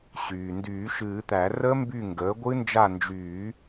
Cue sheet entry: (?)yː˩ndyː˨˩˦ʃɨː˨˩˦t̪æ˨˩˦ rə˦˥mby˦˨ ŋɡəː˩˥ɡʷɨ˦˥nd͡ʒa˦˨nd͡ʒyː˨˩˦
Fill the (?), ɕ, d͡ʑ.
ɕ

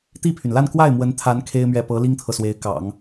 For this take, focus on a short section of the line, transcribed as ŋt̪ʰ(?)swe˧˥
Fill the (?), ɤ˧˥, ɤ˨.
ɤ˨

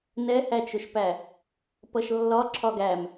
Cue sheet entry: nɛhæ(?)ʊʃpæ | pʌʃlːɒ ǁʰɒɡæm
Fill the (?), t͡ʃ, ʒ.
t͡ʃ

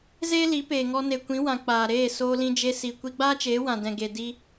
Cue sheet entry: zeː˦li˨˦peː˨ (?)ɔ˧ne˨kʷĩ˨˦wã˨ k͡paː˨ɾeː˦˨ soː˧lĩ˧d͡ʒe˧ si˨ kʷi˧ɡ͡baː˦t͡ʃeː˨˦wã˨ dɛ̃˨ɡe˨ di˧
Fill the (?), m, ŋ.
ŋ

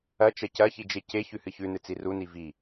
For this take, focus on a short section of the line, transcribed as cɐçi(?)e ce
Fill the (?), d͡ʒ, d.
d͡ʒ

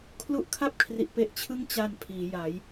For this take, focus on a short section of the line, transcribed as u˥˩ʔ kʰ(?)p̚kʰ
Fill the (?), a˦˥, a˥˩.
a˥˩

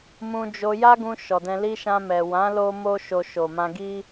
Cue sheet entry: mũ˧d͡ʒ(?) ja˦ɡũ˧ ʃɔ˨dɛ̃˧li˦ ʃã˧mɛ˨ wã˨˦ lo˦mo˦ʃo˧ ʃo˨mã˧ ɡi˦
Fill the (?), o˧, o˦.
o˧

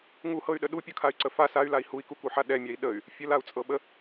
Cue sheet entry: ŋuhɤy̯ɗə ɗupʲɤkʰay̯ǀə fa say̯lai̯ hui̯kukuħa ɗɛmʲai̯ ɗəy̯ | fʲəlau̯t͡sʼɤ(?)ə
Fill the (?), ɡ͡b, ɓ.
ɓ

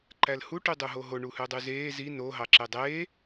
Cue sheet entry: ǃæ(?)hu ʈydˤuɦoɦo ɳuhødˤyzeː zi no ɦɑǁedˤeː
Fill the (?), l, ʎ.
l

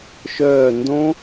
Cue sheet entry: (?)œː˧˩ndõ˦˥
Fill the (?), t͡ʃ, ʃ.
ʃ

